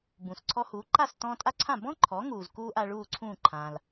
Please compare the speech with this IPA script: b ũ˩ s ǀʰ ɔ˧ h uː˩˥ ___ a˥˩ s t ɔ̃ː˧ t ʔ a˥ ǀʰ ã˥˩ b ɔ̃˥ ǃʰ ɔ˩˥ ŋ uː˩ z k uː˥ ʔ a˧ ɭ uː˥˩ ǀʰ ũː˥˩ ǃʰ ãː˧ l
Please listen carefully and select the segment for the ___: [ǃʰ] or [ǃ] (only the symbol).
ǃ